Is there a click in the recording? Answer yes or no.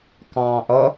no